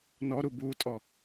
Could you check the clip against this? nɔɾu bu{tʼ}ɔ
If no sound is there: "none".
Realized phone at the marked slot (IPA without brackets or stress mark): tʼ